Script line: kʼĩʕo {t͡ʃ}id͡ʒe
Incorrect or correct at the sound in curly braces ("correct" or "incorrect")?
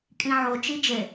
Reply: correct